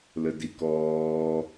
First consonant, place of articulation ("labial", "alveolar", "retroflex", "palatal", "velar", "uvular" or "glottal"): alveolar